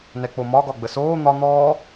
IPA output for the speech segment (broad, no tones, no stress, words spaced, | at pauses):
nɛk͡pomɒ ɡɒɡ͡bəsoː n̪ɒ n̪ɔː